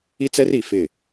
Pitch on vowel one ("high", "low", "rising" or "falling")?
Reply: high